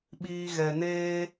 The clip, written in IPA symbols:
ɓ iː˧ ɣ ɛ˨ n eː˦

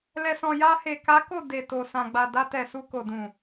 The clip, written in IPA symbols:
l ɛ˨ s ɔ̃˨ j a˧ h e˨ k a˨˦ k o˦˨ d e˨ t o˨ s ã˨ ɡ͡b a˨ d a˧ t ɛ˨ s u˧ k o˨ d ũ˨

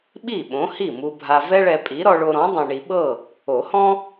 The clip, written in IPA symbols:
ɓ i˥˩ ɓ õ˨˥ h i˥˩ m u˧ bʱ a˧ v ɛ˥ ɭ ɛ˧ pʼ i˨˥ ɾ ɔ˧ ɭ o˧ ɾ ɔ̃˨˥ dˤ õ˧ ɳ i˧ ɓ ɤ˥˩ | o˨˩˦ h ɔ̃˥

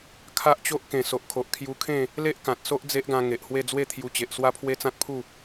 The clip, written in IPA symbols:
kʰ a˦ ʔ t͡ɕ o˦ ʔ k ẽ˨˩ s o˨ ʔ kʰ o˨ ʔ kʰ j u˧ kʰ ẽ˥˧ | l e˦ ʔ k ã˨ t̚ s o˦ ʔ d͡z e˦ ʔ ɡ ã˧ ŋ e˨ ʔ h w e˥˧ d͡z w e˥˧ t̪ʰ j u˧ t͡ɕ e˨ ʔ s w a˦ pʰ w e˦ t͡s ã˦ t̚ pʰ u˥˧

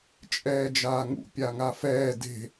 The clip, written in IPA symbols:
t͡ʃʼ ɛː d͡ʒ aː ŋ ṵ pʲ a ŋ a f ɛː d e̤

